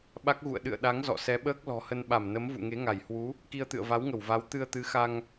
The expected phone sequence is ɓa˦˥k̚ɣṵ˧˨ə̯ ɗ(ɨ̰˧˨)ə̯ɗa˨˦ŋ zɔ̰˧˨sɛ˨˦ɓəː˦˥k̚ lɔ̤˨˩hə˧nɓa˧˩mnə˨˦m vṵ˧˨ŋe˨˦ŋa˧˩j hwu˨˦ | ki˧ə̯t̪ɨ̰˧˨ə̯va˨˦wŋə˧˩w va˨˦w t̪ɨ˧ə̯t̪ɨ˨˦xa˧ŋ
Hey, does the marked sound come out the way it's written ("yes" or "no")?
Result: yes